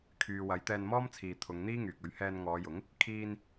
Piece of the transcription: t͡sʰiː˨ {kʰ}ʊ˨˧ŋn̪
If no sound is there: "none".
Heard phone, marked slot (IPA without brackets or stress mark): t̪ʰ